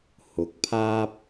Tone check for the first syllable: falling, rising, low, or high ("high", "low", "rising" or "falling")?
rising